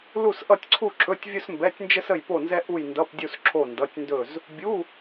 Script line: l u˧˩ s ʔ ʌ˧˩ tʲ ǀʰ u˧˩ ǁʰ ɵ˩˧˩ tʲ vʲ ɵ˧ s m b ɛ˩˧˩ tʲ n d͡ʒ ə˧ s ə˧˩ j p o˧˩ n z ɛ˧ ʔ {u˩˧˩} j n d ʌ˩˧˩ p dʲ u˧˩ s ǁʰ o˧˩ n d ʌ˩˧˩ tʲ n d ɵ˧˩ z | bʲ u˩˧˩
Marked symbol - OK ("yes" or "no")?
no